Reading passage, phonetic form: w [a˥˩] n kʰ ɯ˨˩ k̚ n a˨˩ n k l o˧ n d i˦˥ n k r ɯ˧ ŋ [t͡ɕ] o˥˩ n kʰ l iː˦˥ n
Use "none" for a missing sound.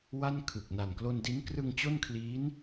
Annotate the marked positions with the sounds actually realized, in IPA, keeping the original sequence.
a˥˩, t͡ɕ

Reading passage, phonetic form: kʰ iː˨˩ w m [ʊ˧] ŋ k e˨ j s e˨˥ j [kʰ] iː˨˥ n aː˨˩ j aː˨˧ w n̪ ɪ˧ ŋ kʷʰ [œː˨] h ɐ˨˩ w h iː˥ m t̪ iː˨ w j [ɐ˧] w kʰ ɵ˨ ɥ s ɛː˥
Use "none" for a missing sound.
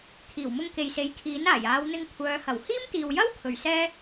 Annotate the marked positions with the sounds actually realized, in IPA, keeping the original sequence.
ʊ˧, kʰ, œː˨˧, ɐ˥

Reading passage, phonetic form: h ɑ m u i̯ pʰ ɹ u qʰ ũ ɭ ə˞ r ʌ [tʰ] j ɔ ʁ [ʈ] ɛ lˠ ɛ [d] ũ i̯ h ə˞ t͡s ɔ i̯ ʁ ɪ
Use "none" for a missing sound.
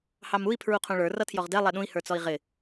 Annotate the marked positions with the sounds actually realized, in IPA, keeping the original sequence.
tʰ, d, ɗ

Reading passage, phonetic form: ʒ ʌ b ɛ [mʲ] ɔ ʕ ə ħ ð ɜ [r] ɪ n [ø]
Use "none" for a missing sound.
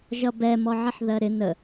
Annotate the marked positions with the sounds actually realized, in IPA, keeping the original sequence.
m, ɾ, ə

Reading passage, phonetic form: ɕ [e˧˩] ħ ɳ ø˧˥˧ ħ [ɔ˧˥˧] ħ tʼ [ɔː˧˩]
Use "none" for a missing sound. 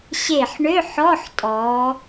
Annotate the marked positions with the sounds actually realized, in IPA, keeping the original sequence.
e˧˩, ɔ˧˥˧, ɔː˩˧

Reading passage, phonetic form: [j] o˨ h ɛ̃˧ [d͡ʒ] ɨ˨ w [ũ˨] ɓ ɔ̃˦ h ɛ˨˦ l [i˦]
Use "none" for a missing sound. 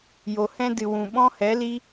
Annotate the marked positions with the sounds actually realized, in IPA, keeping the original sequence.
j, d, ũ˨, i˦

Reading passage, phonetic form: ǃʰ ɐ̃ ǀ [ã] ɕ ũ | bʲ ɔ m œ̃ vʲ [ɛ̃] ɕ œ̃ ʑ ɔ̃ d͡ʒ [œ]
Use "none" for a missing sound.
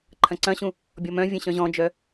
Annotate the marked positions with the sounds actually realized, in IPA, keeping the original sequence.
ɐ̃, ɛ̃, œ

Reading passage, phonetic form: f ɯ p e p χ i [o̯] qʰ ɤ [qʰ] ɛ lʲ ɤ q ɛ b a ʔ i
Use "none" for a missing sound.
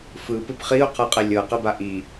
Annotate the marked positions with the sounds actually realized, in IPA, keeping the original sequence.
o̯, qʼ

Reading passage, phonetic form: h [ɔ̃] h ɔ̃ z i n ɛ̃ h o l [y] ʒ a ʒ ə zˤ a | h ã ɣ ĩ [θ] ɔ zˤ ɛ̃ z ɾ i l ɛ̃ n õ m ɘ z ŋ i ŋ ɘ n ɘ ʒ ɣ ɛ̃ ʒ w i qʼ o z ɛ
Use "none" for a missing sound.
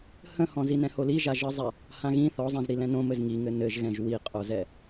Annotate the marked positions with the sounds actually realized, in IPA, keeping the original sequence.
ə̃, i, θ

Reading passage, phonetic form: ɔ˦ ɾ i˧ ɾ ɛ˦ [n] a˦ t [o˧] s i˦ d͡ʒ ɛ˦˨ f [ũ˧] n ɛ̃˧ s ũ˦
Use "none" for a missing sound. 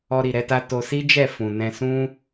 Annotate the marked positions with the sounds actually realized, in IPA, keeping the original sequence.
t, o˧, ũ˨

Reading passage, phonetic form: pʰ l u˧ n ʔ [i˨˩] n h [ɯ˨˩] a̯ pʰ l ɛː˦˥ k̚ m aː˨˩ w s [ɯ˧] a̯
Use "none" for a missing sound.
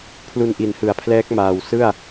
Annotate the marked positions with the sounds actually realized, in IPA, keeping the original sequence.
i˩˦, ɯ˩˦, ɯ˥˩

